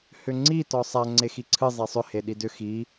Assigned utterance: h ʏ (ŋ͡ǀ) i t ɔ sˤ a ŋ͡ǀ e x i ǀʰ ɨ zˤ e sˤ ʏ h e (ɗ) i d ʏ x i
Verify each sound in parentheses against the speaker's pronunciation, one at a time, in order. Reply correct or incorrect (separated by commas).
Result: correct, correct